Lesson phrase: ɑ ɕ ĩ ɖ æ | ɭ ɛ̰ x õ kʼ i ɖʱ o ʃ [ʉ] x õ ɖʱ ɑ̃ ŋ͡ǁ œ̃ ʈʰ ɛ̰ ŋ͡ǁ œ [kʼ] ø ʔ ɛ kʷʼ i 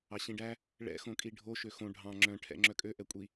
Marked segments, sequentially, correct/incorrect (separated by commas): incorrect, correct